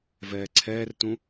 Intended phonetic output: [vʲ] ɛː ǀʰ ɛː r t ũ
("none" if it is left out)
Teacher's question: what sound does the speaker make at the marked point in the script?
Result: v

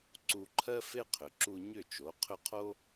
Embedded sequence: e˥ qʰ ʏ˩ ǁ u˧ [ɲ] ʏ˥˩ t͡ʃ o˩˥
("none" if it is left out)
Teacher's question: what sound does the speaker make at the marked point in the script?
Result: ɲ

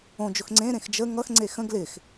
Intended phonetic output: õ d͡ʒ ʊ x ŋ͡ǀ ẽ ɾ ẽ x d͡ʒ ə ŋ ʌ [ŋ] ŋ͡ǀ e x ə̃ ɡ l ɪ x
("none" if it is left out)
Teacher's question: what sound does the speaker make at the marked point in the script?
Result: x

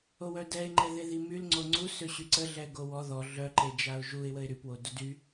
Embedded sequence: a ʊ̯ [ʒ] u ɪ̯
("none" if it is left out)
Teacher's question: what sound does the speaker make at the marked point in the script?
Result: ʒ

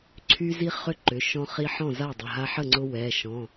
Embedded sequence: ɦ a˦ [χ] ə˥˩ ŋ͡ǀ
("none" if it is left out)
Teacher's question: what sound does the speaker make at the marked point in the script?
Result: ħ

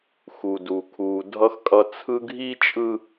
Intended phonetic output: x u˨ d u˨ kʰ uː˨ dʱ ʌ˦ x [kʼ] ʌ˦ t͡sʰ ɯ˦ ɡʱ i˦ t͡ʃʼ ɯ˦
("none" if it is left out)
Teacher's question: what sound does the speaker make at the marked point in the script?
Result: kʼ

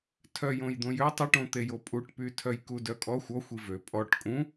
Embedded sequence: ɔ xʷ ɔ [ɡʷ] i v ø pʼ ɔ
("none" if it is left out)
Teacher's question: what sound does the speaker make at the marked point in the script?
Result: xʷ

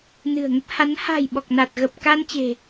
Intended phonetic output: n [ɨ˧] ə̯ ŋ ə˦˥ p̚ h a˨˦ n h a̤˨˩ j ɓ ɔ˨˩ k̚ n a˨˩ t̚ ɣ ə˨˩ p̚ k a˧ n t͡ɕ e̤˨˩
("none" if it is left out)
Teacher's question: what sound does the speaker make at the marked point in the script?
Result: ɨ̤˨˩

